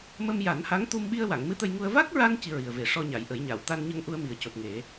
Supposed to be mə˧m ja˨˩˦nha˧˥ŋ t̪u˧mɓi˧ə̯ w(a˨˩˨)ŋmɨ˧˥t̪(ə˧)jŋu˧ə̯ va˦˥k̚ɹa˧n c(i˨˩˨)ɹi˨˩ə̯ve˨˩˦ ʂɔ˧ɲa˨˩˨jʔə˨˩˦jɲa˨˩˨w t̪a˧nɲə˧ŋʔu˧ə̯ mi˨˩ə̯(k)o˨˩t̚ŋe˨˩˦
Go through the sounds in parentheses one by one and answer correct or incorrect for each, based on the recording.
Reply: correct, correct, incorrect, incorrect

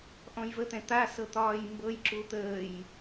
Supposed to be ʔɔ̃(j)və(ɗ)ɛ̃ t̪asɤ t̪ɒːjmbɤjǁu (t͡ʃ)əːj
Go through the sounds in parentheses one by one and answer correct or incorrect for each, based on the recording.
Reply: correct, incorrect, incorrect

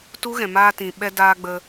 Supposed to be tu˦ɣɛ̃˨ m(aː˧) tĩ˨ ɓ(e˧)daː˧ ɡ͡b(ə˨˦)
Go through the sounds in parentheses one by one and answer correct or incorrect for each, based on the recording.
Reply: correct, incorrect, incorrect

